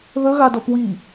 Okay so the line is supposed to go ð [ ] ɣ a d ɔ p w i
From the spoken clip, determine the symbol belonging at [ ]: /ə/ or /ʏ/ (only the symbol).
ə